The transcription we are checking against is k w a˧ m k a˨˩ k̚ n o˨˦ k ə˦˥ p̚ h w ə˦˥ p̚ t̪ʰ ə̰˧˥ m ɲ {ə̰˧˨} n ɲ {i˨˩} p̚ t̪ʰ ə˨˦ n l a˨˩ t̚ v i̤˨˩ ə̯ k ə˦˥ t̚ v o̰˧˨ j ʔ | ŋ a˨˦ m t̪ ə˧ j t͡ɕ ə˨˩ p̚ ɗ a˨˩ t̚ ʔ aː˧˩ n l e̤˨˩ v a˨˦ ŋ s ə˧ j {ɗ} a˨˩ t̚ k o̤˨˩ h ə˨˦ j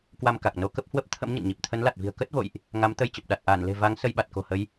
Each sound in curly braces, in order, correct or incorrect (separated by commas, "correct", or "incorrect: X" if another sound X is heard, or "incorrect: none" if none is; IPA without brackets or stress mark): correct, correct, incorrect: ɓ